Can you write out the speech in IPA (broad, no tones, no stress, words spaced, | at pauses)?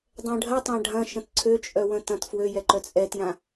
dˤɛ̃ɖʱɐtˤã ɖʱɐ̃ ʃə̃tǀʰøt͡ʃʼœ wə̃tɐ̃tfwøjɛ ǃœt͡sʼɛtjã